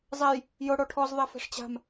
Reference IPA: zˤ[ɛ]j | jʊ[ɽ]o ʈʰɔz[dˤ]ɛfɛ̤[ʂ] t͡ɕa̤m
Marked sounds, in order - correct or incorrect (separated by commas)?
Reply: correct, correct, incorrect, correct